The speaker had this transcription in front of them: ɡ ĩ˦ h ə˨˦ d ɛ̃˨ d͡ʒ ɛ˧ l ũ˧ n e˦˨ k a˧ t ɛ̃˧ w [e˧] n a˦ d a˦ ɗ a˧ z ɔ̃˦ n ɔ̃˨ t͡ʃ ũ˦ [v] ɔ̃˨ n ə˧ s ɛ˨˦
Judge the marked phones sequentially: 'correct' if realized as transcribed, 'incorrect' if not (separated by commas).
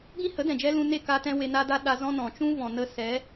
correct, correct